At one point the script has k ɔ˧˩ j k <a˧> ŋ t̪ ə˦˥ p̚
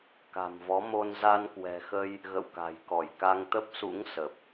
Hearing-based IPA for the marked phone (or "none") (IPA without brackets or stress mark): a˧